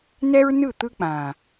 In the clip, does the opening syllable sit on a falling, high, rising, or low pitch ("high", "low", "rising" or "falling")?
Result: high